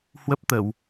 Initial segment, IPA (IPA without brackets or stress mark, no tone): h